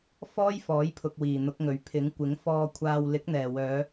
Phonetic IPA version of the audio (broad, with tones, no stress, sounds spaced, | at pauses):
f ɔː˥ j f ɔː˨˥ j pʰ ʊ˨ k̚ w iː˨˩ n̪ ʊ˨˥ k̚ ŋ ɵ˨ ɥ pʰ ɪ˨˥ ŋ kʷ ɪ˨˥ ŋ f ɔː˧ kʷʰ aː˧ w l ɪ˨˥ k̚ n̪ ɛː˨˩ w œː˨˧